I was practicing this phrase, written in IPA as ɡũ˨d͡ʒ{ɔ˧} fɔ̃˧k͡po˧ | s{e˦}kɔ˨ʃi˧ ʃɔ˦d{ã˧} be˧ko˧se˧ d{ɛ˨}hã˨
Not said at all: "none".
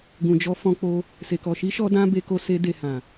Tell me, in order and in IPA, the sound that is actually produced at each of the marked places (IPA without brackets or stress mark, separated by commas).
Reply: ɔ˧, e˨, ã˦, e˨